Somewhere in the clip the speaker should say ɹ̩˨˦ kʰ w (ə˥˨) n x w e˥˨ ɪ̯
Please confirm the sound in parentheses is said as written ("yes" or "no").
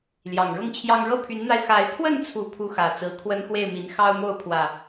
no